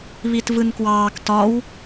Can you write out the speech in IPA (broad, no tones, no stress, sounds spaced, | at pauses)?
β i t v ɯ n k w ɑː k t ɒ w